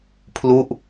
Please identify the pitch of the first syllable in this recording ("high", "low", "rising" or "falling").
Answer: falling